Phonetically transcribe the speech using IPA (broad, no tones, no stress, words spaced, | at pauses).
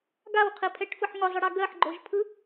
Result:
ɡawqʰipʰɛʈfɯħ ŋʊzˤɯɽa ɡɜħɡ͡ǃoʒpʰɯ